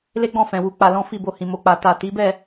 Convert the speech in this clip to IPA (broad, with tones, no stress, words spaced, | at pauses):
le˦ɡ͡bɔ̃˦˨fɛ̃˨ wu˧ k͡pa˧lɔ̃˦ fi˦˨ bo˧hĩ˨mo˧k͡pa˨ ta˨ ti˨˦bɛ˦˨